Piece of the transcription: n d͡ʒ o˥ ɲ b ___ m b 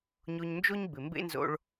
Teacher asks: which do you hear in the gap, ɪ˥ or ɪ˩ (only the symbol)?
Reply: ɪ˩